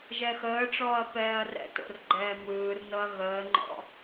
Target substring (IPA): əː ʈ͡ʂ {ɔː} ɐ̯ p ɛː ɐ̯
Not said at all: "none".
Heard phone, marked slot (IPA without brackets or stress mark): ɔː